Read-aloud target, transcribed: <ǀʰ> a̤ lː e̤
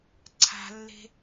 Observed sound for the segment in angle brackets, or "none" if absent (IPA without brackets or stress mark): ǀʰ